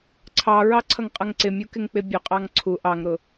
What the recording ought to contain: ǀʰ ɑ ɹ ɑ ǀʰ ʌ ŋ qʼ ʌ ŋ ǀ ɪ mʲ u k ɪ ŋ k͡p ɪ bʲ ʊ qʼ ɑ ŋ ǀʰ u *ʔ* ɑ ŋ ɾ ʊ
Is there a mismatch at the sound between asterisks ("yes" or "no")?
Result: no